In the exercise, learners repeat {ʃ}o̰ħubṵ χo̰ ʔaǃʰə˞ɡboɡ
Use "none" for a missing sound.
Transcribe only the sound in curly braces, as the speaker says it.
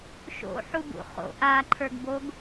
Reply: ʃ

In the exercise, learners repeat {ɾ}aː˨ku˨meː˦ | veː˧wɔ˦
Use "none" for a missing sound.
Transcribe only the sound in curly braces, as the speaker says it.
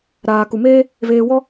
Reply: ɾ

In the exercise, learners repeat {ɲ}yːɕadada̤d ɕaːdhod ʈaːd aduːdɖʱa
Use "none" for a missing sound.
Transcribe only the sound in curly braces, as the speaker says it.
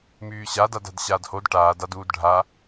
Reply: m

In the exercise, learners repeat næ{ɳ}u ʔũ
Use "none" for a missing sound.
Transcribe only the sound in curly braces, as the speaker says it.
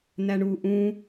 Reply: ɳ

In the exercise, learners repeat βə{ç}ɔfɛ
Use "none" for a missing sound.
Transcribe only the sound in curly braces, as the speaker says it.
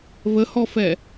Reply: h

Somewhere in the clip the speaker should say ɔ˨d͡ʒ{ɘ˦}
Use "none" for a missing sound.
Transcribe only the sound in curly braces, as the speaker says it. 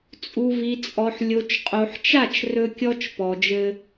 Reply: ɘ˦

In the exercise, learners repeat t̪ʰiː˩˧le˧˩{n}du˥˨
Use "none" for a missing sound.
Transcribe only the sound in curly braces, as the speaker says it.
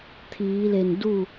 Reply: n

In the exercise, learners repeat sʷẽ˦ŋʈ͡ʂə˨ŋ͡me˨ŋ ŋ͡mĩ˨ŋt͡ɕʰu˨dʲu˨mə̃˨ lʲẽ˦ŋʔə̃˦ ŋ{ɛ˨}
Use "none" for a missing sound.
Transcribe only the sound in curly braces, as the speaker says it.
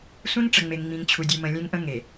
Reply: e˨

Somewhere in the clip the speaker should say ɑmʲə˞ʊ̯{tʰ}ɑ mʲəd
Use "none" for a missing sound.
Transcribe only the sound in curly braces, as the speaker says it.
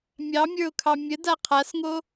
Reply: kʰ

